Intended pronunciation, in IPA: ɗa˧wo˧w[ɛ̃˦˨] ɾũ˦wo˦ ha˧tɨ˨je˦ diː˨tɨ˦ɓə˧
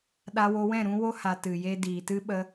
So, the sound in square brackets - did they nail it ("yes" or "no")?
yes